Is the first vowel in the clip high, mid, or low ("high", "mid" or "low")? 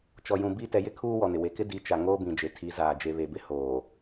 mid